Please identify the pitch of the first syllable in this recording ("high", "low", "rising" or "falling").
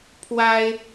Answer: high